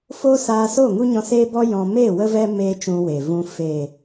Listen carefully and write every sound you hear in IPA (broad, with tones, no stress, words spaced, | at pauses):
fo˦saː˧so˦˨ ŋu˦ɲɔ̃˧seː˦bɔ˦ jɔ̃˧ me˦˨ wə˦vɛ˦ meː˦t͡ʃũ˧we˨vũ˧ feː˨